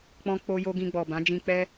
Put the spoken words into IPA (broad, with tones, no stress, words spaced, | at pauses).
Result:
k͡pɔ̃˧k͡po˧jo˧ ɡĩ˧ɡ͡bɔ˨bã˨˦ d͡ʒĩ˧k͡pɛ˦